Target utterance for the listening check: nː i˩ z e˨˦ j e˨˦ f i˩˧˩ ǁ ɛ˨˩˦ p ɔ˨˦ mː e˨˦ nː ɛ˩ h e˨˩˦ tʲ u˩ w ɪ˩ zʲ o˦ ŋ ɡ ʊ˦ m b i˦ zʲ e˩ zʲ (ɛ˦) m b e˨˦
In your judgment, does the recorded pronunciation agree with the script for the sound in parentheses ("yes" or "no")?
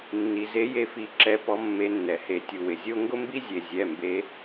no